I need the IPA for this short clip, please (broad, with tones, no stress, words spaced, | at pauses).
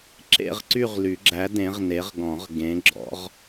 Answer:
ǁḛ˥˧ʁǀy˥˧ʁly˨˩˦ɡ͡ǁæ˨˥ dẽ˨˥ʁne˨˥ʁɡɔ̃˨˩˦ʁ ɡẽ˨˥ɡ͡ǁɔ̰˨˥ʁ